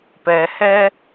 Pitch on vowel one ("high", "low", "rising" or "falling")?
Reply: low